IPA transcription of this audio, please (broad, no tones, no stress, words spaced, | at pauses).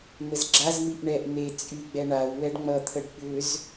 n̪əzɡ͡ǁazmiʔ ɳɛʔ n̪e t͡sʼyɡ͡bɛ ɳau̯ wɛɖŋ͡mʌt̪ʰəɖ ɓʏz